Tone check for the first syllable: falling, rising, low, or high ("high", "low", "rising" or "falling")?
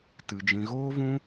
low